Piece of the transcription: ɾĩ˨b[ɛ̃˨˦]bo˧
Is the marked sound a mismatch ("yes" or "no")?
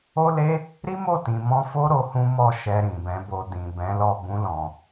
no